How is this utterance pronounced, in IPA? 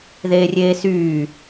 ð eː rʲ eː s yː

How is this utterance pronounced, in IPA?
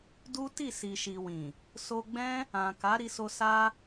d u˦ t i˦˨ s i˨ ʃ i˨ w ĩ˨ | s o˧ ɡ͡b ɛ̃˦ | ã˨ k a˨˦ ɾ i˧ s o˧ s a˧

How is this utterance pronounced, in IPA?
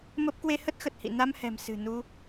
m ə˦˥ p̚ k w e˧ h ə˦˥ t̚ x ə˨˩ t̚ h ḭ˧˨ n a˧ m h ɛ̤˨˩ m s ɨ̤˨˩ n u˧

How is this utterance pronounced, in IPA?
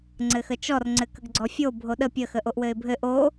ŋ͡ǀ ɘ x ə t͡ʃ ɔ r ŋ͡ǀ ɘ k ə ɡ ɡ͡ǀ ɔ fʲ o bʱ o ɗ ə pʲ ə x ə ʔ o ʔ w ɘ ɪ̯ bʱ ɘ ʔ o

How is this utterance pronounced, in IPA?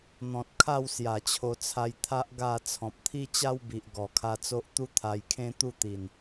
n̪ ɔ̃˨ t̚ kʰ a˥˧ w s j a˨˩ t͡ɕʰ o˧ t͡sʰ a˧ j t̪ʰ a˦ ʔ ɡ a˥˧ t͡sʰ ɔ̃˨ p̚ t̪ʰ i˦ t͡ɕ a˦ w b i˨ ʔ ɡ ɔ˨˩ kʰ a˧ t͡s o˦ ʔ t̪ u˦ t̪ʰ a˧ j kʰ ẽ˦ t̪ u˥˧ t̪ i˨˩ n

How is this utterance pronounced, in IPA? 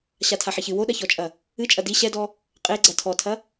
ɕ a tʰ a ħ e ç ɨ w o ɗ ɐ ç ɔ t͡ʃʼ ɐ | ɨ t͡ʃʼ ɐ d i ɕ ɛ d ɔ | qʼ e ɡ͡ǀ ɐ tʰ ɔ tʰ ɐ

